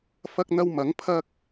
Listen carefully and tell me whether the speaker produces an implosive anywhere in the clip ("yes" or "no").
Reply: no